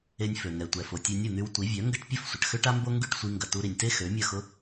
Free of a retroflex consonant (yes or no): no